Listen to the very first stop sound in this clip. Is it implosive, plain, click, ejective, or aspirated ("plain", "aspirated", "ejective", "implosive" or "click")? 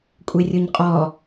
ejective